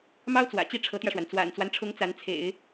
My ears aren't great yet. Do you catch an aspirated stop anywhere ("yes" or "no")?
yes